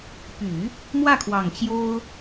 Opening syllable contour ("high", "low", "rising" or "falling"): low